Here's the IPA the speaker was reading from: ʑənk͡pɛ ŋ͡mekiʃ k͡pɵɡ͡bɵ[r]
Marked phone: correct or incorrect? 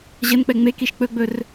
correct